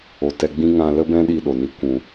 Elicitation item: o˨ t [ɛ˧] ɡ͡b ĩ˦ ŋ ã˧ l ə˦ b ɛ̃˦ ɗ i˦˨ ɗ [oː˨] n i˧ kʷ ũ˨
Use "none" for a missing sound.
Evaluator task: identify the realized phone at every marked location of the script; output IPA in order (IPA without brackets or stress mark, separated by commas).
ɛ˧, o˨